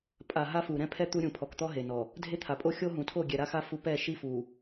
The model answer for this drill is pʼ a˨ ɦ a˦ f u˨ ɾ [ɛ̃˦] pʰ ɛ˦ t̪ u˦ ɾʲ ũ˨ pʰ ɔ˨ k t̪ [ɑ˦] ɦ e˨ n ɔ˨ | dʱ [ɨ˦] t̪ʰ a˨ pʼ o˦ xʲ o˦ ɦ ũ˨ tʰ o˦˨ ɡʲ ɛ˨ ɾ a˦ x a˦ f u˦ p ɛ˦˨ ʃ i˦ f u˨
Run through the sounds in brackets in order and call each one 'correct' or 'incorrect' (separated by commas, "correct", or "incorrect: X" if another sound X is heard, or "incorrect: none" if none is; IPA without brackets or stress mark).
correct, incorrect: ɔ˦, incorrect: e˦